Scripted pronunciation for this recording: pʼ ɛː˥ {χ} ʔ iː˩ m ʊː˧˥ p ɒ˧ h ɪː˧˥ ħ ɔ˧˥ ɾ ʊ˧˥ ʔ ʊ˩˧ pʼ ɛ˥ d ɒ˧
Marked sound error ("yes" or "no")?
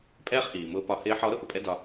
no